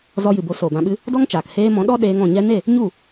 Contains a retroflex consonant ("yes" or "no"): no